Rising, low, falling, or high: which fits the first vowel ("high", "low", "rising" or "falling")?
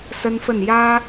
high